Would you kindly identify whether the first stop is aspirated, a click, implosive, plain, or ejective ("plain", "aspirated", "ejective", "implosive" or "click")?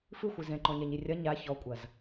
click